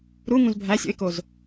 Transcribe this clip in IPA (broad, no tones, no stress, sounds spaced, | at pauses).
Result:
ɾ u ŋ ũ z bʱ æ sʲ o̰ ɪ̯ k o z